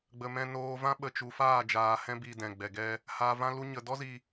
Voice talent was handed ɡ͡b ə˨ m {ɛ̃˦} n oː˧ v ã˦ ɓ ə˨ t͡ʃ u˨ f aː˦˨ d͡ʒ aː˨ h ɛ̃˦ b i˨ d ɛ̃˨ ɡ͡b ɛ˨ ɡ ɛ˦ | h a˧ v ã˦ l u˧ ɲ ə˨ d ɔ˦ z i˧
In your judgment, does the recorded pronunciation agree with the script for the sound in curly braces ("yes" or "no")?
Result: no